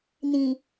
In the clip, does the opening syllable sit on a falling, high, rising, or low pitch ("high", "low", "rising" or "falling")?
low